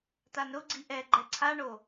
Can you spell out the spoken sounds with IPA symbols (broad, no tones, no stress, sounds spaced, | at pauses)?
t a n ɾ ʊ ɡ͡ǀ i ʔ ɛ ɡ͡ǃ ɛ ǀʰ a ɳ o